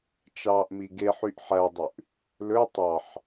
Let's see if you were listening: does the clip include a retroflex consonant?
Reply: no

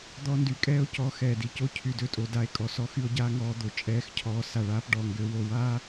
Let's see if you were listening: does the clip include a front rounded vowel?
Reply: yes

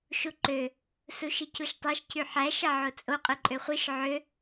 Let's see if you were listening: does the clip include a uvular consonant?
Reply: yes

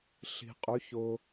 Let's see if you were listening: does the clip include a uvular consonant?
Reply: yes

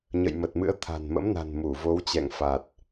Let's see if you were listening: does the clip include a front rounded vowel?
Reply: no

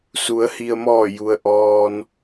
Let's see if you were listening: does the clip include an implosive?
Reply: no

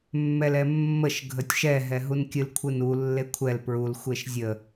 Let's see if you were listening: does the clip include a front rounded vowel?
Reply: no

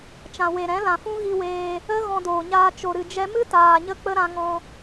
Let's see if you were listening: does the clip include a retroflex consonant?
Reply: no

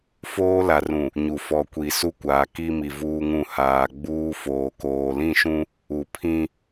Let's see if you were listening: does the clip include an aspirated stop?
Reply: yes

